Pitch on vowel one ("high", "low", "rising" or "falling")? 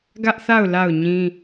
high